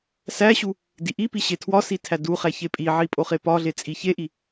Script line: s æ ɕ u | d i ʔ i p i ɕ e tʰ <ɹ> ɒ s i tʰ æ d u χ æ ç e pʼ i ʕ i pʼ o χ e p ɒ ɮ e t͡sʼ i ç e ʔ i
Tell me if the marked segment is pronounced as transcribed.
no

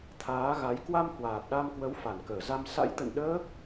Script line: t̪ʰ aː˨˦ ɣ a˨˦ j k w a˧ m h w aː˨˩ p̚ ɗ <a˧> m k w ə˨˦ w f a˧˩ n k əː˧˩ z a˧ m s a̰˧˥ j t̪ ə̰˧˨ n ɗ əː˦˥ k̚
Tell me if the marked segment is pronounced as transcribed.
yes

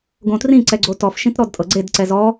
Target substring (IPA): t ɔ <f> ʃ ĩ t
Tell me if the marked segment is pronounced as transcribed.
yes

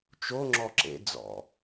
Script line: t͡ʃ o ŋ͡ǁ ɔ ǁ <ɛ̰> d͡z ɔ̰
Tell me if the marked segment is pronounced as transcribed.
no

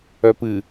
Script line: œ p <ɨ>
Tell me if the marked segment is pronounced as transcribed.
yes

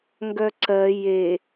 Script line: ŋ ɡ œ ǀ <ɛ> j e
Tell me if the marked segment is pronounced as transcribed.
no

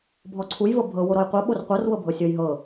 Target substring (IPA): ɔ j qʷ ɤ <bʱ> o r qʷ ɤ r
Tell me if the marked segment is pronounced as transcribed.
no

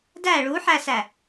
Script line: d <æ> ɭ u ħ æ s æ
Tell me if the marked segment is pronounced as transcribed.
yes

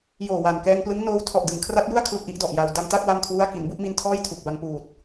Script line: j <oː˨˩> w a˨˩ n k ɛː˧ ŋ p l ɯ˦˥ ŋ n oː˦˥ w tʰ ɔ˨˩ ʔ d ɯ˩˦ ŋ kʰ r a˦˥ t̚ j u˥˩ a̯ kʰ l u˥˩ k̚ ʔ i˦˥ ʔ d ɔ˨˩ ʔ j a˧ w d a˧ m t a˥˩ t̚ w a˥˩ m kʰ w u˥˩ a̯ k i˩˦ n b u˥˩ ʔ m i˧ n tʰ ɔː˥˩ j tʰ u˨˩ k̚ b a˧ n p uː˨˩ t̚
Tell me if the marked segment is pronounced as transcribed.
yes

